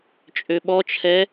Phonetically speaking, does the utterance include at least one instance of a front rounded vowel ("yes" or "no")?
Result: yes